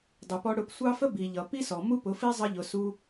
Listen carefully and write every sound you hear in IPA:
dˤ ɪ˧ p ɔ˦ ɽ ʊ˦˨ p sʷ ɑ˦ f ə˦ b i˨ ʎ ʌ˨ p i˦ s ɔ˨ m u˦ p ʊ˨˦ f i˦ zˤ ə˧ ʎ ʊ˨ s u˦

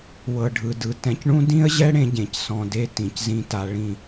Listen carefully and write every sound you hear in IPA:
w ɤ˨ ɖʱ ɯ˨ d ɯ˨ t ɛ̃˨ c ɳ ũ˦ d ĩ˦ ə̯ ʑ ɛ˦ ɽ ẽ˦ ɟ ẽ˨ c s ɔ̃˨ d e˦ t ĩ˨ c z ĩ˦ t a˦ ɭ ĩ˦˨

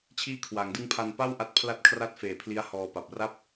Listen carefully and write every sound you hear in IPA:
t͡ɕʰ iː˥˩ kʰ w a˩˦ ŋ d ɯ˥˩ ŋ pʰ a˧ n p a˥˩ w ʔ a˦˥ t̚ pʰ l a˥˩ t̚ kʰ r a˥˩ t̚ f eː˨˩ pʰ l i˦˥ a̯ h ɔː˧ p a˨˩ p̚ r a˥˩ p̚

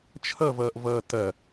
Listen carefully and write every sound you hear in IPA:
t͡ʃʰ ʌ v ʌː ʔ v ʌː t ɐ

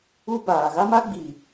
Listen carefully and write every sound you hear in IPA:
u˦ b aː˨ ɣ a˦ m a˦ ɡ͡b i˨

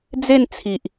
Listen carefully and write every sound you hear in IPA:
d͡z e˥˧ n t͡sʰ i˨ ʔ

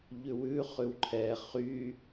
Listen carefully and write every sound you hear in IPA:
ʎ ʉ w ʉ χ ʉ w ǃʰ ɛ χ y

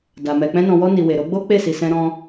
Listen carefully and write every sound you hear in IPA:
d a˨ m ɛ˨ k͡p ɛ̃˧ n ɔ̃˨ w ɔ˧ n i˨ w e˨ ɾ o˧ ɡ͡b o˦ k͡p e˦˨ s i˨ s ɛ̃˧ ɾ ɔ̃˧

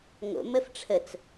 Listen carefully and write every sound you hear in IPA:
ŋ o̰ m ə f ʈ͡ʂʰ ə t͡s

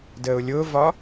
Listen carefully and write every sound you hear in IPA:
d əː ʊ̯ lʲ ʊː v ɒ

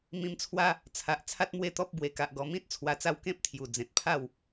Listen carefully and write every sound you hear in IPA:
m ĩ˧ m t͡sʰ w a˦ | t͡sʰ a˨ ʔ t͡sʰ a˦ t̚ m w e˥˧ t̪ ɔ˦ p̚ b w e˨˩ k a˨ ʔ ɡ ɔ˨˩ m ĩ˦ t̚ t͡sʰ w a˧ t͡s a˦ w k ẽ˦ p̚ t̪ʰ j u˨˩ d͡z ẽ˨ t̚ pʰ a˥˧ w

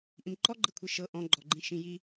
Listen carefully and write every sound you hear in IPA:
ʔ ĩ m ǃ ɔ ɡ͡ǃ ɪ kʷʰ i ʃ ɤ ʔ ɔ̃ ɡ͡ǃ ɔ ɡ͡ǃ ĩ ʃ ĩ j i

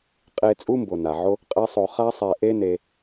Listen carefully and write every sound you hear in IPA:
qʼ e˦ t͡sʼ u˦ m b o˨ n a˨ ʕ o˦ | qʼ e˦ sˤ o˧ χ a˦ sˤ ɛ˧ ʔ e˦ n e˧

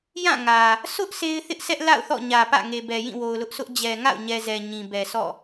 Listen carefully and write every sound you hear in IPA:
j ã˦˨ ŋ ä˨ | sʰ ʊ˦ ʔ sʰ e˦ ɪ̯ θ ɪ˦ ʔ s ɛ˦ ʔ l a̰˦˨ ʊ̯ θ ɔ̰˦˨ ɲ ä˨ p ä̰˦˨ ŋ e˨ b ɛ˨ j ĩ˦˨ w o˨ ʊ̯ l ʊ˦ ʔ sʰ ʊ˦ ʔ d͡ʑ ɛ˨ ŋ a̰˦˨ ʊ̯ ɲ ɛ˨ z ɛ˨ ɲ ĩ˨ b ɛ˨ sʰ ɔ̰˦˨

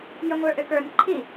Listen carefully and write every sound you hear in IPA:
j ə ŋʷ ə˞ ʔ ø k ə˞ n ǃʰ i

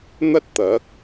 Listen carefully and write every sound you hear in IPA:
n̪ ɐ˥ t̚ t̪ ɐ˨˥ k̚

